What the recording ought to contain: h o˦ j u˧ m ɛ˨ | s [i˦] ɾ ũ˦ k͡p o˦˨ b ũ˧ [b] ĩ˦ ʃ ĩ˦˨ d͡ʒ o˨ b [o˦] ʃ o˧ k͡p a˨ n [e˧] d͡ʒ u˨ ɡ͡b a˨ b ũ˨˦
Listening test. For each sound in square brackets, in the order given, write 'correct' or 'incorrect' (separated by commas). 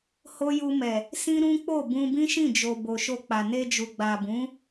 incorrect, correct, incorrect, correct